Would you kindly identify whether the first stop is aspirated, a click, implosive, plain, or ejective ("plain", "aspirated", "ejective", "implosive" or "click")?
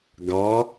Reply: plain